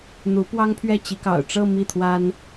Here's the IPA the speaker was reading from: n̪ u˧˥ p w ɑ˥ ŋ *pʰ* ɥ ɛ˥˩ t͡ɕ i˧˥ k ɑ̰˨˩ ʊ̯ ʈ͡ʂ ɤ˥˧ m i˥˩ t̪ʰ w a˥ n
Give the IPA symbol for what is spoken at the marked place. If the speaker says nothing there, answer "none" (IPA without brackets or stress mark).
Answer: pʰ